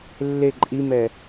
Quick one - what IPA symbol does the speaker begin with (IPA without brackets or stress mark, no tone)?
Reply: lː